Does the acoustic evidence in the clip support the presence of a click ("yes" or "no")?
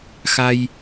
no